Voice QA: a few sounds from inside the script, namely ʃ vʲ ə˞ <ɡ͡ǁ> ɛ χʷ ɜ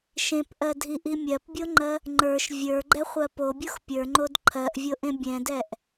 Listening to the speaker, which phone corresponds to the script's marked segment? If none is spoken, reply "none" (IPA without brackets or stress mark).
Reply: ɡ͡ǃ